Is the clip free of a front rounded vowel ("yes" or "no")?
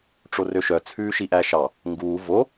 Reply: no